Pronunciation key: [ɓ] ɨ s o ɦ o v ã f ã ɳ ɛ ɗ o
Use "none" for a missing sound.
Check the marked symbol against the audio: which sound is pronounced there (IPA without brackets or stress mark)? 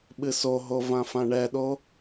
ɓ